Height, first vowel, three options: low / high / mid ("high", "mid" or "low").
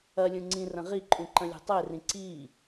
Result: low